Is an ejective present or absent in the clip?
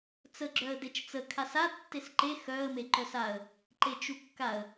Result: absent